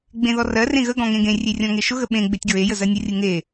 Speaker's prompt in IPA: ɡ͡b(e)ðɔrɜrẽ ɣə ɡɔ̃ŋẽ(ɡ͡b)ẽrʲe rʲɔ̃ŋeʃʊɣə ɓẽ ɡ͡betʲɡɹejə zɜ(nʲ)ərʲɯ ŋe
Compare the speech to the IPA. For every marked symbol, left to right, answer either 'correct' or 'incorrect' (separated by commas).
incorrect, incorrect, correct